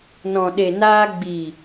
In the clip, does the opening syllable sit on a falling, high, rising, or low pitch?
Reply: low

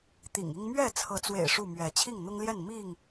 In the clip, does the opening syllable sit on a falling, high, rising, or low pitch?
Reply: low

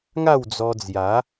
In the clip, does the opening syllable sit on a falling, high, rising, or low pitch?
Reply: falling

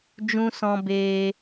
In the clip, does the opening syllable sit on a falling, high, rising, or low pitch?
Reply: high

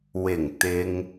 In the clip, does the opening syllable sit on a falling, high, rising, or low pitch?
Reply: low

